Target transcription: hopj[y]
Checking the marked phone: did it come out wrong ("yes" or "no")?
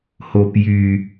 no